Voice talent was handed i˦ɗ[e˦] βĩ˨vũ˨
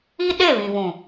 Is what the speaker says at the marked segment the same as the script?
no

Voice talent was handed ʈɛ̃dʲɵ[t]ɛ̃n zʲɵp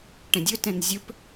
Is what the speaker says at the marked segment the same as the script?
yes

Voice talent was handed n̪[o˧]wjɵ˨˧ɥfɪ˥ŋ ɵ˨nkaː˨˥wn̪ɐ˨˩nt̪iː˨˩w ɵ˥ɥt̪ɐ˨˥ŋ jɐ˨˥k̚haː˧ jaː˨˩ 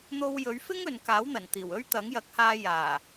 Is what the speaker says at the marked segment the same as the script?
yes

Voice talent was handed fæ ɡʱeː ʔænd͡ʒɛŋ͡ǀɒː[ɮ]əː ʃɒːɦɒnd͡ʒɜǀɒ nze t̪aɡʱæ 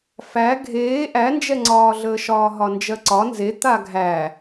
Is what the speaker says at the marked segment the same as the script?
yes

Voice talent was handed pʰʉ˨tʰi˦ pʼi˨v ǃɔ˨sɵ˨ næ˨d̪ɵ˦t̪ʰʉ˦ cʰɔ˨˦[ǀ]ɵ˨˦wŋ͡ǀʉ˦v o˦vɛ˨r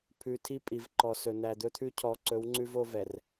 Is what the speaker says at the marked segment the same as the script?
yes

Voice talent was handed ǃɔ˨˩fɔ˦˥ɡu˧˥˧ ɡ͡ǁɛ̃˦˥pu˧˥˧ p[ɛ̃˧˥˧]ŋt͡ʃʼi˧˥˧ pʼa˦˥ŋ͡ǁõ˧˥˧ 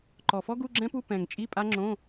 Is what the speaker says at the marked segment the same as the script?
no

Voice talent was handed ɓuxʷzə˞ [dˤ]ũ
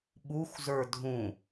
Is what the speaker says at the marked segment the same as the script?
no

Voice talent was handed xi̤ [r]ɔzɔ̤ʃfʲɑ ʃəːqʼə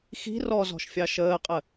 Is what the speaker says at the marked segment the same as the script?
yes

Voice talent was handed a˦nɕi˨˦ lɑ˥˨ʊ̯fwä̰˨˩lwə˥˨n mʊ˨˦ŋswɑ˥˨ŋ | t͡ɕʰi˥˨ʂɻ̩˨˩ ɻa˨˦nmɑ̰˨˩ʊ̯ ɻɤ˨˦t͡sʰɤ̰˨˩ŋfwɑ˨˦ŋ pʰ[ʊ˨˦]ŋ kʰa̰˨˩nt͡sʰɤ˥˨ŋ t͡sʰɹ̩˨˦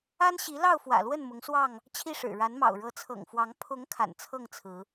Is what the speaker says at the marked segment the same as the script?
yes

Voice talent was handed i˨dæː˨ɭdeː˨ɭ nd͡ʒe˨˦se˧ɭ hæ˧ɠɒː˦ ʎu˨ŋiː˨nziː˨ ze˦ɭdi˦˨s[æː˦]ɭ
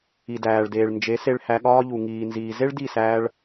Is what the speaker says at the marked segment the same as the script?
no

